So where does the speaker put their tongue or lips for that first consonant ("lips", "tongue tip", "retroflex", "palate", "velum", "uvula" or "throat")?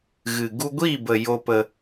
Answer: velum